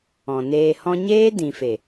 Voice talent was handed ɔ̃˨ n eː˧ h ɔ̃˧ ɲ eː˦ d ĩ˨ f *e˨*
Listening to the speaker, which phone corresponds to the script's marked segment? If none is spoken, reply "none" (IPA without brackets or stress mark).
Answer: e˨